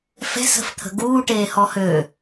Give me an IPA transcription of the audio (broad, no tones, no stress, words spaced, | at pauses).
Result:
fɛ̤sə̤ft̪ʰə̤ ɡuːʈeːhɔ hø